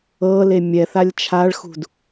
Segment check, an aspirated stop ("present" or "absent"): present